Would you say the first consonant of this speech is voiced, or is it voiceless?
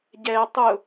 voiced